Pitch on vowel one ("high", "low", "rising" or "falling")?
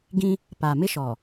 high